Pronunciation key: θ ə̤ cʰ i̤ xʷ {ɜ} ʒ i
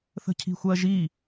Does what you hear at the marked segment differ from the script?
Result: no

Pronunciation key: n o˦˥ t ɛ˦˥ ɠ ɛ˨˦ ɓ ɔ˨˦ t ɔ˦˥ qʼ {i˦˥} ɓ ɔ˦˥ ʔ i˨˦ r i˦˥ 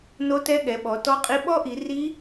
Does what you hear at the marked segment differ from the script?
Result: no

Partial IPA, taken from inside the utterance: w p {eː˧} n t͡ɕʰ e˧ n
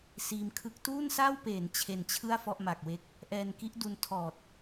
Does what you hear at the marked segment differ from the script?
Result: yes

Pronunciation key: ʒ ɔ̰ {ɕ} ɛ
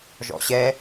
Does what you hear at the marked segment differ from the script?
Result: no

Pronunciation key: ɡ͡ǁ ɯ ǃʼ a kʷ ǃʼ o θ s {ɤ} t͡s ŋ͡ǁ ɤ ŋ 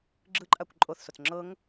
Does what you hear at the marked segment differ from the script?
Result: yes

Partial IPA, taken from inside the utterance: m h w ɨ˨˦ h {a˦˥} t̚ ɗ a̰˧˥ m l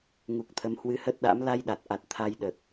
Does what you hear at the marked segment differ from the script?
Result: yes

